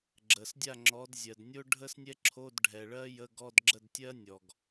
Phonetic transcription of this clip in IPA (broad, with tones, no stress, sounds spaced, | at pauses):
ɡ͡ǁ ə˩ s dʲ a˥˨ ŋ͡ǁ ɔ˨˦ d zʲ ɜ˩ d nʲ o˥ ɖʱ ə˥ s nʲ ɛ˥ ǁʰ o˧˥˧ d ɖʱ ɛ˩ ɭ ɜ˥ j ə˧˥˧ ɡ ɔ˧˥˧ d ɡ͡ǁ ə˥˨ d tʲ ɜ˥ nʲ ɔ˩ ɡ